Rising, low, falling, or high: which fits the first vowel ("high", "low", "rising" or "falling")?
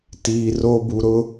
low